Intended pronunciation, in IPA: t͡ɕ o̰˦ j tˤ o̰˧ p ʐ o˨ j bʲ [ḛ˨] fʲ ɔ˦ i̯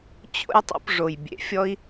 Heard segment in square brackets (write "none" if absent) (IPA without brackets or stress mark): ḛ˨